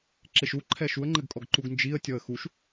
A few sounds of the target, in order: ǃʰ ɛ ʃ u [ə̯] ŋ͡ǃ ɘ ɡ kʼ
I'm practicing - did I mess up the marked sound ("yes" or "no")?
no